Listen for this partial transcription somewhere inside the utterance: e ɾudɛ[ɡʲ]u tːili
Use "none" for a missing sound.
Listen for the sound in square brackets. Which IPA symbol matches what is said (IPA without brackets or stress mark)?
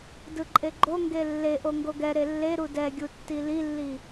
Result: ɡʲ